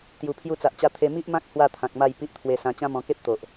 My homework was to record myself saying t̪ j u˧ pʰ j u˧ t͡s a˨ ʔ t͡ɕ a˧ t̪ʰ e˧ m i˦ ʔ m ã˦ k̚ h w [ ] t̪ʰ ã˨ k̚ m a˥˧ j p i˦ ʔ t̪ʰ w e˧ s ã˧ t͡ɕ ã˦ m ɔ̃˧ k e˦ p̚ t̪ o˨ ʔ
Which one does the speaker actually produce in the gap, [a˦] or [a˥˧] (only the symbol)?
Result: a˥˧